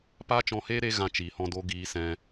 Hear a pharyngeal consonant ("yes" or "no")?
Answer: no